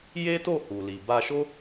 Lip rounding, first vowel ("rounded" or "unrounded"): unrounded